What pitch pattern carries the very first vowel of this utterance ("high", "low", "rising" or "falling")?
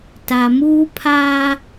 low